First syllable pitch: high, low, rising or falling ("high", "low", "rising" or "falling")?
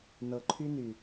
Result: low